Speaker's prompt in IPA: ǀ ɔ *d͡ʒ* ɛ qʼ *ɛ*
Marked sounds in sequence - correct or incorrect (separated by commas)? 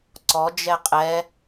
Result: correct, correct